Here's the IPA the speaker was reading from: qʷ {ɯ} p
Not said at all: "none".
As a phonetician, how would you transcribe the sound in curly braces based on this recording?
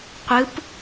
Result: ɯ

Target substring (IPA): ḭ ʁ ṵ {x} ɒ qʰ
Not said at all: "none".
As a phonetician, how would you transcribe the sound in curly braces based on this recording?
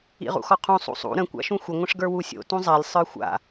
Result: x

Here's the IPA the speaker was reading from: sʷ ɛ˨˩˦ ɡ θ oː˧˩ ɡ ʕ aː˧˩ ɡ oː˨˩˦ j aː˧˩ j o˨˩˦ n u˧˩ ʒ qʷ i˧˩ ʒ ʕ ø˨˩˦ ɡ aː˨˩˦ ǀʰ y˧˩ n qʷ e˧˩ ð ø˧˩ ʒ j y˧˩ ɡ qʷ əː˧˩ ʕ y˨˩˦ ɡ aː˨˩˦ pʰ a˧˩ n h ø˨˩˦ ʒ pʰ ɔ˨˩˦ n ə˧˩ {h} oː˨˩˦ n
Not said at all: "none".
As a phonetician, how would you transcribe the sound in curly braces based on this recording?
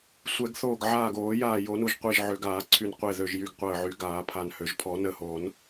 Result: h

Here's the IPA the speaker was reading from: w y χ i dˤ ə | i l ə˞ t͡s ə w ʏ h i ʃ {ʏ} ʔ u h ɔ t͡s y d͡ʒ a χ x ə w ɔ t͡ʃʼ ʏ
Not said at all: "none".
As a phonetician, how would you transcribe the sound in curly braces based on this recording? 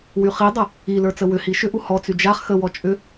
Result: ʏ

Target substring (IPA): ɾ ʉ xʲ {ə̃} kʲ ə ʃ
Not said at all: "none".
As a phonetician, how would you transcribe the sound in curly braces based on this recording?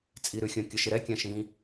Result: ə̃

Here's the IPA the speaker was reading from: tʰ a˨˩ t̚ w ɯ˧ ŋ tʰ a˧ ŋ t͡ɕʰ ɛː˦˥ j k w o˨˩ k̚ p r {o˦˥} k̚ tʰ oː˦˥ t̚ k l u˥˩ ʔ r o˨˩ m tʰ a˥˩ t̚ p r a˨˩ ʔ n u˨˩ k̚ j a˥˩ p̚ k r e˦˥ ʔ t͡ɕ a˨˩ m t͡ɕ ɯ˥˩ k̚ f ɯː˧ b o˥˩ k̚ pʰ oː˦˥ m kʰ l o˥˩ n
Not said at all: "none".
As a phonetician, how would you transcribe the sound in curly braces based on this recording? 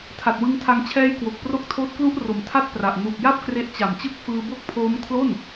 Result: o˦˥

